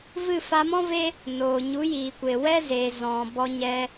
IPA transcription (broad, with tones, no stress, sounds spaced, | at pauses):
v ɨ˦˨ f a˧ m ɔ̃˦ v e˦ | n oː˨ ɲ u˨˦ j iː˨ kʷ e˨ w ɛ˦ z eː˨ z ɔ̃˨ b ɔ˧ ɲ ɛ˧